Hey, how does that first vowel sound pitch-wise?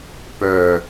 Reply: low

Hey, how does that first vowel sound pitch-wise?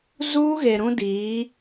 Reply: high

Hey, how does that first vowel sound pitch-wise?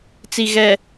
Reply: low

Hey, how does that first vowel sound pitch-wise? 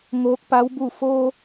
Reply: rising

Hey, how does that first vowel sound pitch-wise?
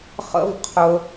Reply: high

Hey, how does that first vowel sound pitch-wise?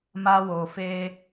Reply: high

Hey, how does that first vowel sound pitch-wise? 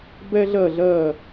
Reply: high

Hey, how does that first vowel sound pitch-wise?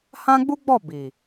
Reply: high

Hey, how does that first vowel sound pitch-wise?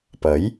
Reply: rising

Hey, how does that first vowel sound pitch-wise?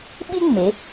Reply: high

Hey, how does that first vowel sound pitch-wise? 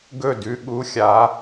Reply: falling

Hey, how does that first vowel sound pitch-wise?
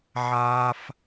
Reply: high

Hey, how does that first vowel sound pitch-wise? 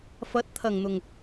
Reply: rising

